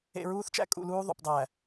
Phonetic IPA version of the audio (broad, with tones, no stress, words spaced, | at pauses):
ḛ˨ɹuː˦θt͡ʃæ̰˦ kʼṵ˦˨luː˦ ðˤṵ˨pdˤæ˨